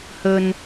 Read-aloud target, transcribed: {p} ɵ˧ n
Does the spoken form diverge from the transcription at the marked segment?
yes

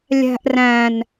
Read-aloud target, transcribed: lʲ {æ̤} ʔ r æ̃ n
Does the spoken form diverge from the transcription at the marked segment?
no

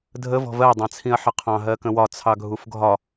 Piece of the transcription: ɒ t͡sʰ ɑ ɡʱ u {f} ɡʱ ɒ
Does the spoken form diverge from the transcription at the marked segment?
no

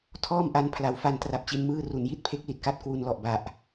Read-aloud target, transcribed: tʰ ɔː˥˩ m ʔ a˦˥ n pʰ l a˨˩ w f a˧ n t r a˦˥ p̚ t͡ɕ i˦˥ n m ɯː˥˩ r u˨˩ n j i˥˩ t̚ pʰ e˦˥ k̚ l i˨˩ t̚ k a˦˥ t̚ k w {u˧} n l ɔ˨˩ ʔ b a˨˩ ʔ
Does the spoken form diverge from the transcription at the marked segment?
no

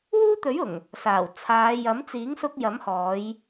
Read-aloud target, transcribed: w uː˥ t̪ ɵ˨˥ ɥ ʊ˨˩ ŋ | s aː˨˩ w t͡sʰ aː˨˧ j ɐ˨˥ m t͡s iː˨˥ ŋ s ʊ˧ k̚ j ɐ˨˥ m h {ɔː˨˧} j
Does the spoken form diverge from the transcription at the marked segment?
no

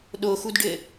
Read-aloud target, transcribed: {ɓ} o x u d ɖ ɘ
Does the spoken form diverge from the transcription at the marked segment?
yes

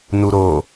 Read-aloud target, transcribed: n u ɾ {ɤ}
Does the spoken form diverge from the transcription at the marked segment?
yes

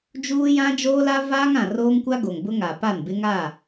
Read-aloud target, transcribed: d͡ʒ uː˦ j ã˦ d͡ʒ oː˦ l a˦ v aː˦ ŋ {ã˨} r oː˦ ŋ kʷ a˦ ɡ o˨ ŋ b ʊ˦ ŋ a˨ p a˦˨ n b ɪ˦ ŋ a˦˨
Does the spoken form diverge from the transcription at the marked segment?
no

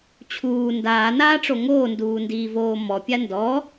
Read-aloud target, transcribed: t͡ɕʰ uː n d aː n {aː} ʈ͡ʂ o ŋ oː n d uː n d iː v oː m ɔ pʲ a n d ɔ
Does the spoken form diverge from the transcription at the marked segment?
no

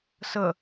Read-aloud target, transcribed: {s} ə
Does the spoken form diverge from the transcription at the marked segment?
no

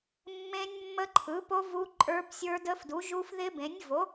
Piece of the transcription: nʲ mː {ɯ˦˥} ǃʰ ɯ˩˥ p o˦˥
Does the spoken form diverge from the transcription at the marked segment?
yes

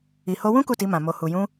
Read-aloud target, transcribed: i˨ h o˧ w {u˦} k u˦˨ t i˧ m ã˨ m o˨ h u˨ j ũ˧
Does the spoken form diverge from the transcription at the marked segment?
yes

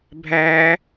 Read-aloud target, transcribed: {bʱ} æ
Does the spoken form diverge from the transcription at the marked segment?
no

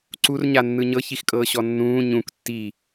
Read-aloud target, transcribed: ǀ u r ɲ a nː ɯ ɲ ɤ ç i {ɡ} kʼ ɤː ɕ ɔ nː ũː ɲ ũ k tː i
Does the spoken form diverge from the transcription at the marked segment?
yes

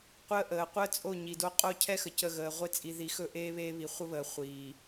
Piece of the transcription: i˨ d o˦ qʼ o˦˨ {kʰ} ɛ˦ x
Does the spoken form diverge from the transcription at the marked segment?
yes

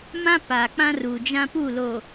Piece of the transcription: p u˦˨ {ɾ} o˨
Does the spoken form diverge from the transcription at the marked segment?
yes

